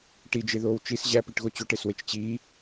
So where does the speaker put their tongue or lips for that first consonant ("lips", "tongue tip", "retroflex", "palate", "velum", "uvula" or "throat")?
retroflex